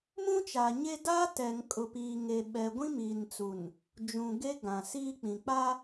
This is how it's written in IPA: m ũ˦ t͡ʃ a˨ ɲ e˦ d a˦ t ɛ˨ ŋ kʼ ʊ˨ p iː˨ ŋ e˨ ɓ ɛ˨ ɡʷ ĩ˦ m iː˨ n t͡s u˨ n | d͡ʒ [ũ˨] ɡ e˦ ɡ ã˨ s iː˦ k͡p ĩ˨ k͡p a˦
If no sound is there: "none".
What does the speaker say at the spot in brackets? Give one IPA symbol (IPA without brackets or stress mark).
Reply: ũ˨